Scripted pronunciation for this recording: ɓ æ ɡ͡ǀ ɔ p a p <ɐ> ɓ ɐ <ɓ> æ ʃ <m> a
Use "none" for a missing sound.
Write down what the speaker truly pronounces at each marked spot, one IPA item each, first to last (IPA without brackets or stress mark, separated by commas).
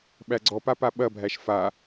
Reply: a, bʱ, f